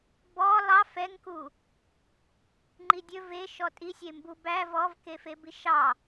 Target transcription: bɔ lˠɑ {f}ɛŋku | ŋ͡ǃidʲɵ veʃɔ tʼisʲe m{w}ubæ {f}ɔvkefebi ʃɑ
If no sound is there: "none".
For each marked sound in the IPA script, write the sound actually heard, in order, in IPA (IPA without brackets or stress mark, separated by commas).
f, b, v